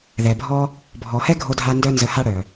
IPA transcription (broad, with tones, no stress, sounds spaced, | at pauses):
ð ɛ˨ bʱ ɔ˦ | bʱ ɔ˨ h ɛ˦ ɡʱ o˧ dʱ a˧ n d œ˦ n z ə˧ h a˦ ɽ œ˨